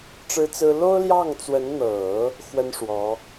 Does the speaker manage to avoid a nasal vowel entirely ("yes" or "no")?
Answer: yes